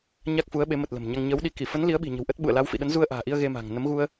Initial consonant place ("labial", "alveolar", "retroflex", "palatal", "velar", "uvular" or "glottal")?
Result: palatal